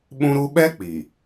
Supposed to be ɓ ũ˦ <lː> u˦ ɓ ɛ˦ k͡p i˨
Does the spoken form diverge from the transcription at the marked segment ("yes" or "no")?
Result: yes